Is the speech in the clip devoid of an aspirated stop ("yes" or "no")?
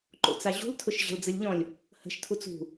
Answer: no